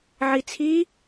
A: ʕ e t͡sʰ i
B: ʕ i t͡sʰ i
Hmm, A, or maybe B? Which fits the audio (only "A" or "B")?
B